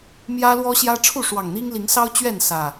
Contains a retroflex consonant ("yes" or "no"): yes